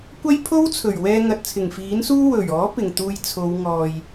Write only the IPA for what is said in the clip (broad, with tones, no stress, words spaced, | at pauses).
kʷɐ˥jpʰo˥wt͡sʰɵ˨˩ɥwɛː˧ ŋɐ˨t̚t͡sʰɪ˨˩ŋfiː˨˥nsuː˥ wɵ˨˩ɥɔː˨˥ pɪ˨˩ŋt̪uː˧j t͡sʰo˨˧w ŋɔː˨j